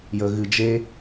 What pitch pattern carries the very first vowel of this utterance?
low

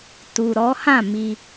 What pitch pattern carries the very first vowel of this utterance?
low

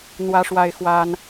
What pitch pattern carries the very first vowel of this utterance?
high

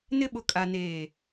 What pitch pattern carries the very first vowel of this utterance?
high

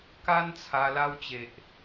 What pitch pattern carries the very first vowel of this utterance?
high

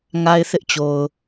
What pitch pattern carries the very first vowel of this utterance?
high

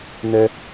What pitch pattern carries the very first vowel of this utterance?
high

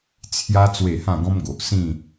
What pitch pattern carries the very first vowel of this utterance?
high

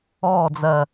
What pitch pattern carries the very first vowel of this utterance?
falling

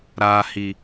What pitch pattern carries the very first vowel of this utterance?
low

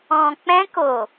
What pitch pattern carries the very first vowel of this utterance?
low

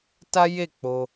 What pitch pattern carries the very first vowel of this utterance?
high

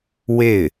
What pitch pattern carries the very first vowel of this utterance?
falling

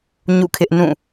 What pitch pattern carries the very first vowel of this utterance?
falling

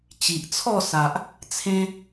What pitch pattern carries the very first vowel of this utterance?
low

